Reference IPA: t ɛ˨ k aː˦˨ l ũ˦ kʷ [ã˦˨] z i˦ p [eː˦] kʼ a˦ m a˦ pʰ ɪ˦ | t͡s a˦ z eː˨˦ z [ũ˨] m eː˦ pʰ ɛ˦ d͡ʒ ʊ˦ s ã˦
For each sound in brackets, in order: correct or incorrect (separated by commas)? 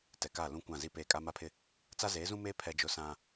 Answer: correct, incorrect, incorrect